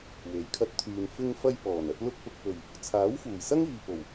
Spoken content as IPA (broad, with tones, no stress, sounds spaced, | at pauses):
w e˨˩ j kʰ ɐ˧ t̚ t̪ʰ yː˨ n f ɪ˧ ŋ f ɐ˧ j p ɔː˨˩ n ɐ˧ t̚ l ʊ˧ k̚ p ʊ˨ k̚ p ɵ˨˩ ɥ | t͡sʰ aː˨˥ w f uː˨˩ j s ɐ˥ ŋ iː˨ p o˨˩ w